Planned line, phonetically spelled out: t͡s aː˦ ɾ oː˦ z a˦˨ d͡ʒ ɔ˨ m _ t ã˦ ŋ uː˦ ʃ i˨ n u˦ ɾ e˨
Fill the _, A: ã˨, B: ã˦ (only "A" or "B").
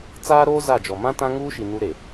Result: B